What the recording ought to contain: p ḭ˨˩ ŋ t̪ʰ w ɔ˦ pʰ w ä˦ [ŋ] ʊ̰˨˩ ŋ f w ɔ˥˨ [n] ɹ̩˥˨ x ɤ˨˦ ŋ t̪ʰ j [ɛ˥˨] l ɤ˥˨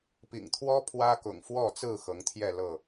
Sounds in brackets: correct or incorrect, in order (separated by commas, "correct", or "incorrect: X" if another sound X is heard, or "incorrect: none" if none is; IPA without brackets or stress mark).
incorrect: k, incorrect: t͡s, correct